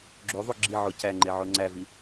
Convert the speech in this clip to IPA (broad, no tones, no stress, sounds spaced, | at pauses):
ɡ͡ǁ o ðˤ o ɡ͡ǁ i ʕ o c æ ŋ͡ǃ e ʕ o ŋ͡ǀ æ v i